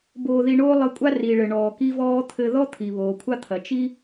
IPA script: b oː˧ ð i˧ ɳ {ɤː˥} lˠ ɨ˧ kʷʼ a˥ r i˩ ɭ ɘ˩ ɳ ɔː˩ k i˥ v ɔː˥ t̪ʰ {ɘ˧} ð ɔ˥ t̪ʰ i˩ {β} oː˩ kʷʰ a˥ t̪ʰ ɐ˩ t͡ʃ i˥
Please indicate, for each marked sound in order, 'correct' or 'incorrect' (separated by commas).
incorrect, correct, correct